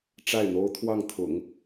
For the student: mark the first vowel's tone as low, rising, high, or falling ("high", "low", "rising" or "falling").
falling